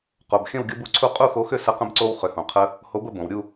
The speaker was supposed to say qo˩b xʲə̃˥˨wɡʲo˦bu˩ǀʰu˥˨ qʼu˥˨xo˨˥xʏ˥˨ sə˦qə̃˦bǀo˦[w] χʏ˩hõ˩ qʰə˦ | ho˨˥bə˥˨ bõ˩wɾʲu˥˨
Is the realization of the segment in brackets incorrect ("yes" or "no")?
no